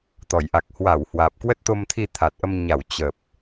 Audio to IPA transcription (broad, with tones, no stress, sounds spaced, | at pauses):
t̪ ɔ˧˩ j ʔ a˨˩ k̚ h w a˧˩ w h w aː˨˩ p̚ k w ə˦˥ t̚ t̪ o˧ m t̪ʰ i˧ t̪ʰ a˨˩ t̚ ʔ ə˧ m ɲ a˧˩ w t͡ɕ ə˨˩ p̚